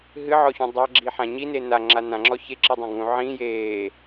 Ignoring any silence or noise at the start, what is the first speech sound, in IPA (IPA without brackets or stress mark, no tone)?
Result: ɦ